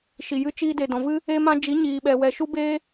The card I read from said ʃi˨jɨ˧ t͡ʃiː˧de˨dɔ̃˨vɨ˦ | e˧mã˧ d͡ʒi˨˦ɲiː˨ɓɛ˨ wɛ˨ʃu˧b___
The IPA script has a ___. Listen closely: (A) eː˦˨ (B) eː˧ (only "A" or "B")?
B